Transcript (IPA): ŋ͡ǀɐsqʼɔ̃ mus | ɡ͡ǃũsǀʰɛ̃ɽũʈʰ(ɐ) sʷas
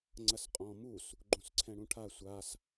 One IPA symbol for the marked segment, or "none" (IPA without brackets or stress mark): a